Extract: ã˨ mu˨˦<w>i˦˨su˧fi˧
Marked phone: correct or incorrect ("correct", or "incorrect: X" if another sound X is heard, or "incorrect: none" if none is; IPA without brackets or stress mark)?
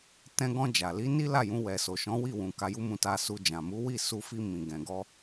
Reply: correct